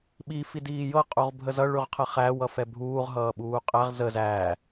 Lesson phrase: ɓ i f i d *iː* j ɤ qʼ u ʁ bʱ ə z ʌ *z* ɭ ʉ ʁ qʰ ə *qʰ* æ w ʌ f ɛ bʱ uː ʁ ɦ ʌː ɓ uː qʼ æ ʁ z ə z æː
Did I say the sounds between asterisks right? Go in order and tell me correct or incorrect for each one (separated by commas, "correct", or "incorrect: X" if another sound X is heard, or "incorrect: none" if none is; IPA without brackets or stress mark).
correct, incorrect: none, incorrect: χ